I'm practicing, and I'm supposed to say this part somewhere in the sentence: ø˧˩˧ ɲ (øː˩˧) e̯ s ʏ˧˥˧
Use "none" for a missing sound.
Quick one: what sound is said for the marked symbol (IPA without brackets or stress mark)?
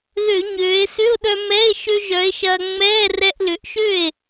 øː˩˧